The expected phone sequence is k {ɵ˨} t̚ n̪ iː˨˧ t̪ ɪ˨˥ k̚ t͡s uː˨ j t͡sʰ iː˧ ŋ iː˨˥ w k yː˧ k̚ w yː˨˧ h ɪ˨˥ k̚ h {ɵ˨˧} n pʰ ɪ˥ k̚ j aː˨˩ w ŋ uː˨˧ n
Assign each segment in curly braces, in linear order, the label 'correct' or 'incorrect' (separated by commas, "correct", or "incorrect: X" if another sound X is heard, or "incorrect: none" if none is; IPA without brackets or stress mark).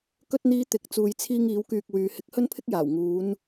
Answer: incorrect: ɵ˧, incorrect: ɵ˥